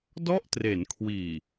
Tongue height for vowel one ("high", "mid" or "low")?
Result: mid